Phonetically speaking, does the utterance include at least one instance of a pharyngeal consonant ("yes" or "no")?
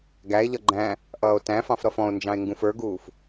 no